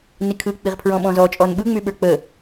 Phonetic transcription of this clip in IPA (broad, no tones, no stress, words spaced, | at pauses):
nikʰɯ k͡piʁpʰɹɔ̃ɓɔ̃zɔ t͡ʃʼɔnɓɯŋ͡myɓə˞ k͡pə